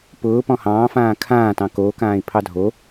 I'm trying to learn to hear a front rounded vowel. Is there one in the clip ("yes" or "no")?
no